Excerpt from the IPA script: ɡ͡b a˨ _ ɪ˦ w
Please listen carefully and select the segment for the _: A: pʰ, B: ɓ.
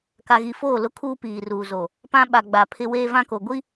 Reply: A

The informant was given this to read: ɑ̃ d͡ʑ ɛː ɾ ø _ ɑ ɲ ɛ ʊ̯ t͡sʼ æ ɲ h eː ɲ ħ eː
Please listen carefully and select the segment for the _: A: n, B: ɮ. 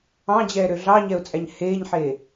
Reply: B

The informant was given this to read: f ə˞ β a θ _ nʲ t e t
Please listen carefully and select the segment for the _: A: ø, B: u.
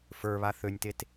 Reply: A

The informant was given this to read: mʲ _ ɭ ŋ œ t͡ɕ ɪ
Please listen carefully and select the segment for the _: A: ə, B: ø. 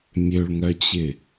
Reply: B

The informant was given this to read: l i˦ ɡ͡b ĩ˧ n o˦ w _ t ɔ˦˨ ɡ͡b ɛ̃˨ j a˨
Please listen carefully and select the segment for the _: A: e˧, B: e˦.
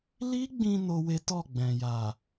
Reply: B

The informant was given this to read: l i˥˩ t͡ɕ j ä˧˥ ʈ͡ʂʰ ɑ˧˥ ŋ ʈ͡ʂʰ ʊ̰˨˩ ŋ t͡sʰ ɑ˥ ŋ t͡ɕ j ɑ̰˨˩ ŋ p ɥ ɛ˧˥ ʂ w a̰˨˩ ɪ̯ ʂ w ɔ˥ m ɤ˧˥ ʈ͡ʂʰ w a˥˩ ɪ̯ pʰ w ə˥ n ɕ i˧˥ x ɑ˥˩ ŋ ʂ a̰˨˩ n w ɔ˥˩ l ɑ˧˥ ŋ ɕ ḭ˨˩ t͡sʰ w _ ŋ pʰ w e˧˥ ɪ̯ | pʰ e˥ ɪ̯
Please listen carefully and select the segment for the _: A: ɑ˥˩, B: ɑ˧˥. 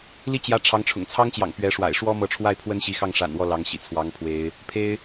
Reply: B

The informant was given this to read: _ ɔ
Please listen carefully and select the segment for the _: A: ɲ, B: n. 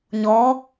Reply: A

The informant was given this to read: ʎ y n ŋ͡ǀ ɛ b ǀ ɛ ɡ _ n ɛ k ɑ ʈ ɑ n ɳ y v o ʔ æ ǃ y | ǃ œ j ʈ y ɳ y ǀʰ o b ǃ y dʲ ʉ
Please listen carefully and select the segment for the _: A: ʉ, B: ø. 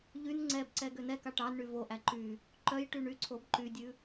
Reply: B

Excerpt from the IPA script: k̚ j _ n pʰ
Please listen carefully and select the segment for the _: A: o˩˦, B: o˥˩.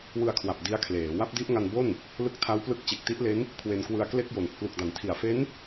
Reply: A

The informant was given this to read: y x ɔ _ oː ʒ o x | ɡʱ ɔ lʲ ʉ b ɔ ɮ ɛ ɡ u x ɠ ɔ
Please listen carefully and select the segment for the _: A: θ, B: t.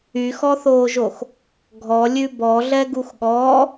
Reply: A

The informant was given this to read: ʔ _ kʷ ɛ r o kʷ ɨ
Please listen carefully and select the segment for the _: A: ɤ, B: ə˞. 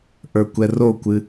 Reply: B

